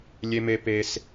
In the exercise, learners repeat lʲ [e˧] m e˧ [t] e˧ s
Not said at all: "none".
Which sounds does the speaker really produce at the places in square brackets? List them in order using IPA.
e˧, p

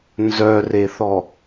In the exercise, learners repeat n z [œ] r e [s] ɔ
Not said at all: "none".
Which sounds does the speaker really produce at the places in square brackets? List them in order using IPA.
œ, θ

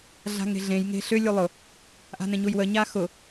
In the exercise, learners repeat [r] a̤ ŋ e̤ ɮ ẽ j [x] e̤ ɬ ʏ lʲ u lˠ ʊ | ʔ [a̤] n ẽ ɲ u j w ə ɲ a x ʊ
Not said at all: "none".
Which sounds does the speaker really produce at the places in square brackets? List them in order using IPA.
ɮ, ŋ, a̤

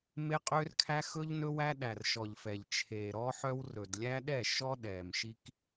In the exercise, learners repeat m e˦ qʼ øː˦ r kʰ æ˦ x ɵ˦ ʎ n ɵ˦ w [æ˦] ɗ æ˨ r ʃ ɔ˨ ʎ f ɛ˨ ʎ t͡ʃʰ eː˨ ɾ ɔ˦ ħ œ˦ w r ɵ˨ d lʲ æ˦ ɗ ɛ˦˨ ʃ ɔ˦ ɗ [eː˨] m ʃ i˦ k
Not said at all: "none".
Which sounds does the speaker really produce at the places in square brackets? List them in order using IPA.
æ˦, ɛː˨

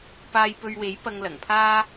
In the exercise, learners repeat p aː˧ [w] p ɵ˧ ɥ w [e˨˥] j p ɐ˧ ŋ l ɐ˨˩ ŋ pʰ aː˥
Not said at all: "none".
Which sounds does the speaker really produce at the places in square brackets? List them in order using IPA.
j, e˨˥

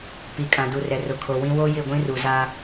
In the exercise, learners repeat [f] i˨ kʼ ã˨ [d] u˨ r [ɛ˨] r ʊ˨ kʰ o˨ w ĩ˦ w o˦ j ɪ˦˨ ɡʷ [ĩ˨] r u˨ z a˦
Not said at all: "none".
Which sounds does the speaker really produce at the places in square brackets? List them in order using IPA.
p, d, ɛ˨, ĩ˦

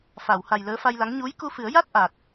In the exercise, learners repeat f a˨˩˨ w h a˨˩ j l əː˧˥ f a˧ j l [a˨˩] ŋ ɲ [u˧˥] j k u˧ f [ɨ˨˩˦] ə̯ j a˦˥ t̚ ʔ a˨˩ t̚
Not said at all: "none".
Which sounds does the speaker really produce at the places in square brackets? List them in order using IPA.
a˧˥, u˧˥, ɨ˨˩˦

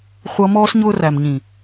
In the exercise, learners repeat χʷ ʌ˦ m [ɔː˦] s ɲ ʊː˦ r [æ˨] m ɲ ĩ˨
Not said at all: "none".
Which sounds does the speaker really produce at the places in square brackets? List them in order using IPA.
ɔː˦, æ˨

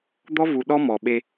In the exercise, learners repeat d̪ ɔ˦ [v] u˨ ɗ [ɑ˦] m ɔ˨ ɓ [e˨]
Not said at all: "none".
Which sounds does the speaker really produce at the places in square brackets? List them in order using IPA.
v, ɔ˦, e˦

